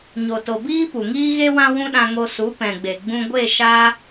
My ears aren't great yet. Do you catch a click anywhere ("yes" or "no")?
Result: no